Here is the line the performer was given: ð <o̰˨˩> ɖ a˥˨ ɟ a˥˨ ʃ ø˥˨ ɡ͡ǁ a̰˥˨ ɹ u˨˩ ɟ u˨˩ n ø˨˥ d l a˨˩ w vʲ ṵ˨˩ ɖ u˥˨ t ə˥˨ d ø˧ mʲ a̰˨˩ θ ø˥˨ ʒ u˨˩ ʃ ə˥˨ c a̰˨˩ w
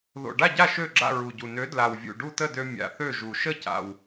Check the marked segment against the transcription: correct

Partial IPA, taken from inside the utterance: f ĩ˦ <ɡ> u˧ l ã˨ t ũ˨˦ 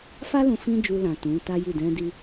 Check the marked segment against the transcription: incorrect: d͡ʒ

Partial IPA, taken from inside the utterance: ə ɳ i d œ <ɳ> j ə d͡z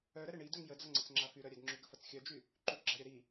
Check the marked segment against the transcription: incorrect: ŋ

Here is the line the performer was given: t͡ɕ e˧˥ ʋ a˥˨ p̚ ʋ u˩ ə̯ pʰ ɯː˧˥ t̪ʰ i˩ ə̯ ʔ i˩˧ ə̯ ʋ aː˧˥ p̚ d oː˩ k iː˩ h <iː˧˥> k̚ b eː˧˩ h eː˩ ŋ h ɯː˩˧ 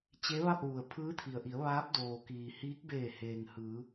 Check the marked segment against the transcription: correct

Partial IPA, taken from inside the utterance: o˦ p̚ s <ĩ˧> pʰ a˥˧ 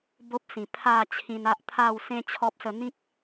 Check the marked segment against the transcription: incorrect: ĩ˨˩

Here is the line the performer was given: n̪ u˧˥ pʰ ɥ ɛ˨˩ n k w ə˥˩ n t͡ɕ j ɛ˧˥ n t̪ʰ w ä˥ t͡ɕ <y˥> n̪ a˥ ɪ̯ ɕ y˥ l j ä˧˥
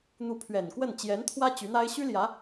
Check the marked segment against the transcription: incorrect: y˧˥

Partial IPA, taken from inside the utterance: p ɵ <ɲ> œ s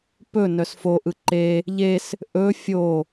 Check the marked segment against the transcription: incorrect: n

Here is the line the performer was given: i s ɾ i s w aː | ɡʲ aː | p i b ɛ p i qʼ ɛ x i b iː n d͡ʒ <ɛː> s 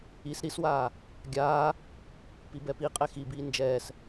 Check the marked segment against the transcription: correct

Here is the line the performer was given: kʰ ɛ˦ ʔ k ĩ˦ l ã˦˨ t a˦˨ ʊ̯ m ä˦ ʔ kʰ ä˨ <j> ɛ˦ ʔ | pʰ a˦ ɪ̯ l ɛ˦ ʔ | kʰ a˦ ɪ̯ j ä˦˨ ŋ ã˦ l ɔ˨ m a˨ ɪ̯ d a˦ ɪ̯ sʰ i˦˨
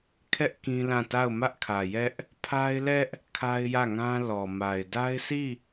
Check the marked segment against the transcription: correct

